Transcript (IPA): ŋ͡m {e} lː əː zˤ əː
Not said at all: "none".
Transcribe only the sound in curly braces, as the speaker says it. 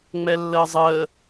ɛ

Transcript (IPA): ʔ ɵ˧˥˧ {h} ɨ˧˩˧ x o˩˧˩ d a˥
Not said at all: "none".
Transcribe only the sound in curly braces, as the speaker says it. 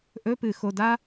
p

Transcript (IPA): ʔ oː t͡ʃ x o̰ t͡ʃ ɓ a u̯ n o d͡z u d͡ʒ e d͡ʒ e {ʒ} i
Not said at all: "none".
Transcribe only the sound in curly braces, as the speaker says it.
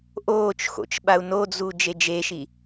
ʃ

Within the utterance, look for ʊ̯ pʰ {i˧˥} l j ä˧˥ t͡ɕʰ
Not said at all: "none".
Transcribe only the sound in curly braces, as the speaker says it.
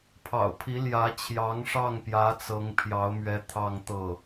i˧˥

